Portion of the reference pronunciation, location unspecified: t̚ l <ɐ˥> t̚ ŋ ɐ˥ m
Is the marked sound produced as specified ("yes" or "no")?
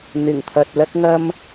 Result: yes